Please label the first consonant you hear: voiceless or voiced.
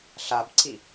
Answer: voiceless